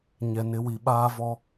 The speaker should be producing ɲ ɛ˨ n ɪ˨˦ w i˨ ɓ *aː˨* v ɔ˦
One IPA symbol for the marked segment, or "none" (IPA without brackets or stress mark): aː˦